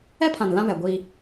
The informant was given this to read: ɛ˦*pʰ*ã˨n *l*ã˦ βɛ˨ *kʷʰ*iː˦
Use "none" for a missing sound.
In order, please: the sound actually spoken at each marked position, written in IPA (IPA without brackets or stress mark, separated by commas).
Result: pʰ, l, ɡʷ